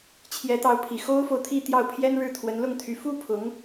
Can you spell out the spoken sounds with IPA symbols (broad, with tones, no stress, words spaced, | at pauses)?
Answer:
t͡ɕʰjɛ˧˥t̪ɑ˧˥ʊ̯pʰi˨˩ xo˥ʊ̯fo˨ʊ̯t̪ʰi˥˧ t̪jɑ˥˩ʊ̯pʰjɛ˥nɻɻ̩˥˩ t̪ʰwə˧˥nlʊ˥˩ŋt̪ʰy˧˥ fu˥pʰʊ˧˥ŋ